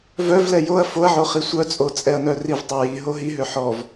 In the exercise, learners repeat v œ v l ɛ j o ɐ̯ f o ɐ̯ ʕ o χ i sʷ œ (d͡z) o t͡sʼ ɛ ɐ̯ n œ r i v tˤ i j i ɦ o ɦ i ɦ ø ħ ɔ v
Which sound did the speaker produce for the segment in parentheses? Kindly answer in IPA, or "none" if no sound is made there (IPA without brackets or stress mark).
t͡sʼ